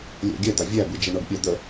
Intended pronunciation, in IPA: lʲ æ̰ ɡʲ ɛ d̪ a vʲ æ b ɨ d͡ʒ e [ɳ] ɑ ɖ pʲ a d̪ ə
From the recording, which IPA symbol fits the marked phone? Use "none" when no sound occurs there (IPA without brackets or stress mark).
ɳ